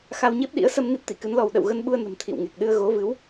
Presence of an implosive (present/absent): present